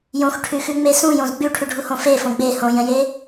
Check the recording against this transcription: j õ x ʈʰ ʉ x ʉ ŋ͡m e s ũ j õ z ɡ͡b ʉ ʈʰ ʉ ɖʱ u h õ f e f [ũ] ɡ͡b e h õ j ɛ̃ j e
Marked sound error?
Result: yes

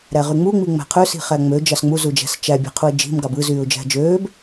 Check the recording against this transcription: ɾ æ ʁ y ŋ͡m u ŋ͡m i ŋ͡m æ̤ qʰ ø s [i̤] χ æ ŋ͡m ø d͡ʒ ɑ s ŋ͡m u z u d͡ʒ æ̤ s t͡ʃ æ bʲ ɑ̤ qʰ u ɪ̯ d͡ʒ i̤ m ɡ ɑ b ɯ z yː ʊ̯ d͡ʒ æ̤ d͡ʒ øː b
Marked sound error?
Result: no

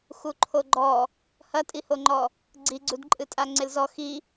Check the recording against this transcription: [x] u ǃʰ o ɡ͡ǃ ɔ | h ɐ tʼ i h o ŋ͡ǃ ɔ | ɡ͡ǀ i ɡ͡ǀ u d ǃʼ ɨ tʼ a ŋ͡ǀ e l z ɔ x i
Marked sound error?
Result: no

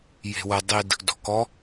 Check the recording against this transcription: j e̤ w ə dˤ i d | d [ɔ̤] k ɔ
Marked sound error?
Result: no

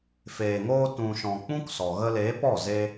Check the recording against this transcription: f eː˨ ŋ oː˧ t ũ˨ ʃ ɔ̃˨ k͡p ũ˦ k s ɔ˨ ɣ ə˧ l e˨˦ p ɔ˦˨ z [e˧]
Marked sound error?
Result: no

